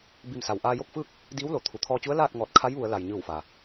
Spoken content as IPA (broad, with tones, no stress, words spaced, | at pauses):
bi˧˩msa˩w ʔaː˧jo˥˨k̚fɯː˥˨k̚ | diː˧˥wlo˩ t̪ʰu˩˧t̪ʰɔː˧t͡ɕu˧˥ə̯ laː˥˨t̚ ŋɔː˧˩t̚kʰa˧˥jʋu˩˧ə̯ la˩jɲɯː˧˩wfa˩